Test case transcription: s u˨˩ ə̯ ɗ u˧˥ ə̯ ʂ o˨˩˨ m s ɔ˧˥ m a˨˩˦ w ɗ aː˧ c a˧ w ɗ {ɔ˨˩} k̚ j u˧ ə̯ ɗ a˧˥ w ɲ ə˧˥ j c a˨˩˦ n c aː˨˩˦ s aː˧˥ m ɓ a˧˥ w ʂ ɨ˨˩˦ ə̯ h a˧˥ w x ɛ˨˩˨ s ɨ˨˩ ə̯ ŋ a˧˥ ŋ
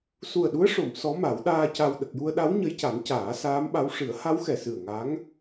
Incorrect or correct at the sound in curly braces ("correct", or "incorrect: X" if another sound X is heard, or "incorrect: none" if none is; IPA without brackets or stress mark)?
incorrect: ə˨˩